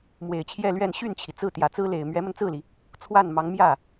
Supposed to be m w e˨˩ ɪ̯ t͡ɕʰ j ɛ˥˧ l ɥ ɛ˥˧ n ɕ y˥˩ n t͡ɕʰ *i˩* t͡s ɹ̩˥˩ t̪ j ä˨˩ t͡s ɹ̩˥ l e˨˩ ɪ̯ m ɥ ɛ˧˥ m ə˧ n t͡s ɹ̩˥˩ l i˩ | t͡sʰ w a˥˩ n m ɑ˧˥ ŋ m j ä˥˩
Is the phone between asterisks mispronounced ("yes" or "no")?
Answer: no